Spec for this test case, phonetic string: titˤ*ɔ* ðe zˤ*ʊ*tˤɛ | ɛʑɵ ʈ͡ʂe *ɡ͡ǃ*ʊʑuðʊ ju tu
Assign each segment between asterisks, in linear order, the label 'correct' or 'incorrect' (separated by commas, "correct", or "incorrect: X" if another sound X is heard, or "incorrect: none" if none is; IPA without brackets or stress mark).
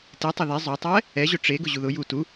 incorrect: ɵ, incorrect: ɵ, incorrect: ɡ